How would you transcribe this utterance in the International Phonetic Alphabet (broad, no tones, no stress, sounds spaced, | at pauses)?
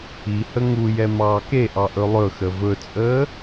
i h ə ŋ u j ɛ m ɑː k e ʔ ɑ ʔ ɵ lˠ ɵ x ə v ɵ t͡sʼ əː